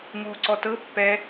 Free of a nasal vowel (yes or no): yes